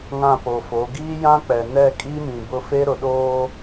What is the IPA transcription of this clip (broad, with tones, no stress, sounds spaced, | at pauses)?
ŋ ã˦˨ p o˨ f o˨˦ ɡ iː˦ j ã˦ k͡p ɛ˨ n ɛ˦˨ kʼ i˦ m ĩ˨ b ʊ˦ f e˦ ɾ ʊ˨ ɗ oː˦